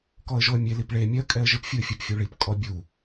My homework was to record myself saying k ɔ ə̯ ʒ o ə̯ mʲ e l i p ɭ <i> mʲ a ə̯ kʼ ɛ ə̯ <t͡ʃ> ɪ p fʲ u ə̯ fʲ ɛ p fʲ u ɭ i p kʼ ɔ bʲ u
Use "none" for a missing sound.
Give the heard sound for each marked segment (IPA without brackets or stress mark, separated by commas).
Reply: e, ʒ